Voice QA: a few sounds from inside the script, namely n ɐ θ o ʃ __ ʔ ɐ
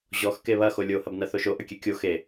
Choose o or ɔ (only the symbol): o